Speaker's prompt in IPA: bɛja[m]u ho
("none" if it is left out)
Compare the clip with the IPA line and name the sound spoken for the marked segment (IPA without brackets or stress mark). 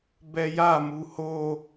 m